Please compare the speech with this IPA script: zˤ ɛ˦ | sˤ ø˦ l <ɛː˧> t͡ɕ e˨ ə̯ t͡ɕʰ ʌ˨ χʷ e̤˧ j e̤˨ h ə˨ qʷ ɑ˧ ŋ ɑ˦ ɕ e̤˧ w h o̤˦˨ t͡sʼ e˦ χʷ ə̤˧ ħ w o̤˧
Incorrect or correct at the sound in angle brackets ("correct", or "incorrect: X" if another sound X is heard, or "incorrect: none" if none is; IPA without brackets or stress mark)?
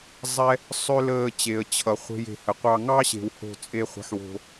incorrect: əː˧